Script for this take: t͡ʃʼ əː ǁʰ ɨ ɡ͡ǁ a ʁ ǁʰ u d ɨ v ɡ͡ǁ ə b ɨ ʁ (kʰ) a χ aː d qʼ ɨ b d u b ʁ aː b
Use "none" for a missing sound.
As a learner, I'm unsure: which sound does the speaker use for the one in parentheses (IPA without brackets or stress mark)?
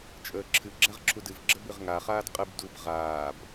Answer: ŋ